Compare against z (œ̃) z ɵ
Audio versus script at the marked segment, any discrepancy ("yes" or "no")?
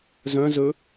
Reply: no